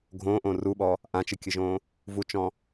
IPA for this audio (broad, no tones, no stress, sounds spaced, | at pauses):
ɡʱ õː ʔ õː r u ɓ ɔ | ʔ ã t͡ʃ ɨ kʲ ɨ ʒ õː | v u t͡ʃ ɔ̃